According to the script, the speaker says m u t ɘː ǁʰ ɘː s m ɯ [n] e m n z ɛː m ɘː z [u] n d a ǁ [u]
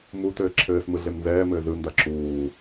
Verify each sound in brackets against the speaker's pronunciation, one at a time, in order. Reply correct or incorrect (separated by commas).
incorrect, incorrect, incorrect